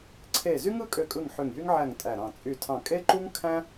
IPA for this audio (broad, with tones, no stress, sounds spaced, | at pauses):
ǀʰ e˧˩ z y˥ ŋ ɯ˥ kʼ ø˧˩ kʼ ɯ˧˩ ŋ ħ ø˧˩ ŋ j y˥ ŋ ʕ æ˧˩ ŋ tʼ æ˧˩ ɾ ɑ̃˧˩ t͡sʼ y˧˩ tʰ ɑ̃˧˩ kʼ e˥ ǃ u˥ ŋ kʰ æ̃˥